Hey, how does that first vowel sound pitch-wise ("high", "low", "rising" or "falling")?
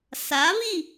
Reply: rising